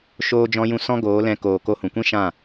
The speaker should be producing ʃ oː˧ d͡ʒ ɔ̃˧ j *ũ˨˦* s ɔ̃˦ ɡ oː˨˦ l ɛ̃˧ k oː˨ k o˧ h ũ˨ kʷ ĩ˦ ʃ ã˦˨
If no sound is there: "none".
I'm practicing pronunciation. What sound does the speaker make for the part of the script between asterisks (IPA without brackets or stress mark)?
ũ˧